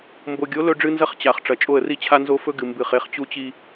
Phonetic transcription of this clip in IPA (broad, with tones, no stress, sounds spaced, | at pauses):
m b o˨ ɡʲ o˨˦ l ɵ˦ ɖ͡ʐ ɨ˦ n z ɐ˦ χ t͡ɕ a˨ χ ʈ͡ʂ ɐ˨ t͡ʃʼ o˦˨ ə̯ r i˦ t͡ɕʰ a˦ n z o˦ f ɵ˦ ɡ ɨ˨ m b ɨ˦˨ χ e˦ χ t͡ɕ u˦ t͡ɕ i˦